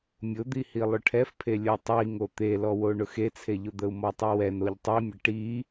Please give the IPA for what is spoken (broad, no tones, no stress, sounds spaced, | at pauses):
mʲ ʊ d̪ i h i lˠ ʊ ʈʰ ɛ f pʰ e lʲ o tˤ i ŋ o t̪ e l ɔ w o ɳ ʊ x e t͡sʰ e ʎ ʊ d̪ ə u̯ m ɔ tˤ i w ɛ n o ʎ tˤ i mʲ ə ʈ i